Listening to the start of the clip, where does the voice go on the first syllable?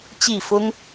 falling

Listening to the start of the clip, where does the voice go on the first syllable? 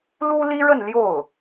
high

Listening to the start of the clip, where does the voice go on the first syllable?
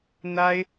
high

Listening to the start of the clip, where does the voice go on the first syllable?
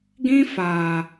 high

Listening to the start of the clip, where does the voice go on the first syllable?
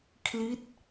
falling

